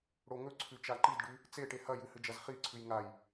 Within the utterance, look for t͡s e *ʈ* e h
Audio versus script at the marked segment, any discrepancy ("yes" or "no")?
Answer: no